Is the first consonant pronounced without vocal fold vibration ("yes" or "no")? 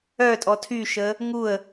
yes